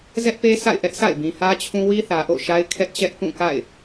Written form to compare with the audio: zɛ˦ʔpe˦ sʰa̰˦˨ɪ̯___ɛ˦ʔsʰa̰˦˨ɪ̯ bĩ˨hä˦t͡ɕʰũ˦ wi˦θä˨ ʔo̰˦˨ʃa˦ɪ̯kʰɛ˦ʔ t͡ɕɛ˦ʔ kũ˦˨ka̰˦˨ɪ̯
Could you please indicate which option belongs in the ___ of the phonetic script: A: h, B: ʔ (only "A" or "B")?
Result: B